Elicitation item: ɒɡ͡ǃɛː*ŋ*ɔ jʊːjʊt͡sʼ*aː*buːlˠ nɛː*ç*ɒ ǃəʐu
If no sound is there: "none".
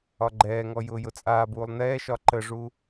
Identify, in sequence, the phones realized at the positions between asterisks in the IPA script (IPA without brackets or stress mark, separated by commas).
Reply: ŋ, aː, ʃ